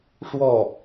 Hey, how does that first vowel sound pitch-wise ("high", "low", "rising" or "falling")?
falling